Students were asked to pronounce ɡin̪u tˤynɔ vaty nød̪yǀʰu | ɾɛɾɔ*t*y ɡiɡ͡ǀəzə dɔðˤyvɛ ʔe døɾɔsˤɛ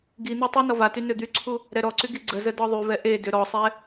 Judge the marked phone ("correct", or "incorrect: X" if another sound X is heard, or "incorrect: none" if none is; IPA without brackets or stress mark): incorrect: ǀ